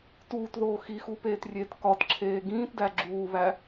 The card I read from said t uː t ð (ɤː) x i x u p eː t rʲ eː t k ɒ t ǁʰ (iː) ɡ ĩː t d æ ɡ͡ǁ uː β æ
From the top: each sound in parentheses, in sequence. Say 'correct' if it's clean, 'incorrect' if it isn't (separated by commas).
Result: incorrect, incorrect